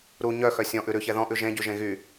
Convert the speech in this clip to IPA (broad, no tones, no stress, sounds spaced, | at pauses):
ɾ u ɲ œ x œ sʲ ɔ̃ ʔ ʉ ɾ ʉ ç ɛ ð ɔ̃ ʔ ʉ ʒ ẽ ɟ y ʒ ẽ ɣ y